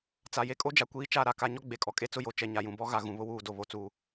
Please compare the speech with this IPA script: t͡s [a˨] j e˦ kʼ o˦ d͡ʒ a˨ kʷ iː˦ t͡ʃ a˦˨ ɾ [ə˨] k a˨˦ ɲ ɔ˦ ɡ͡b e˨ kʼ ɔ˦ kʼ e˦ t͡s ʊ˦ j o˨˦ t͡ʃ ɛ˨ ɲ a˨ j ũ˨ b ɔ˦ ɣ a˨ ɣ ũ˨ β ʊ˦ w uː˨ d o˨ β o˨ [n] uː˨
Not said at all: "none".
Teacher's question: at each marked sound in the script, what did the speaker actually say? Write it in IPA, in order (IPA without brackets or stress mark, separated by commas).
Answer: a˨, a˨, t͡s